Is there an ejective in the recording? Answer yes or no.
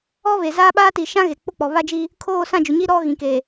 no